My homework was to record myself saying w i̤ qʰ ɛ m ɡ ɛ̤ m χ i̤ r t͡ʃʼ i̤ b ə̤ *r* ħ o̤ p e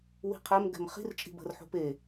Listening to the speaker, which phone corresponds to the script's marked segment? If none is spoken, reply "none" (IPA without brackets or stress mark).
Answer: r